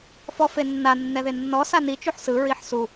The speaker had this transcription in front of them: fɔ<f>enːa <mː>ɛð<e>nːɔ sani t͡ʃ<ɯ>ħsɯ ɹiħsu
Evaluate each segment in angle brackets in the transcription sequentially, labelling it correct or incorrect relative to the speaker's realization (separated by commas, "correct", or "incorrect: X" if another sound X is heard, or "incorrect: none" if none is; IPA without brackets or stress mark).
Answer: correct, incorrect: nː, correct, incorrect: u